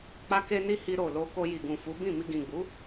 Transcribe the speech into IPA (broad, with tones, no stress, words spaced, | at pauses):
k͡pa˦ ke˦ni˦ hi˧ɾo˨lo˧ko˧ ji˨ɡũ˨fu˨˦ bĩ˦˨mi˧ɡĩ˨ ɡ͡bu˨˦